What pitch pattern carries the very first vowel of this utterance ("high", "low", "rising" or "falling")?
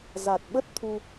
low